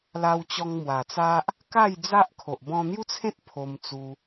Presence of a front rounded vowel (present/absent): absent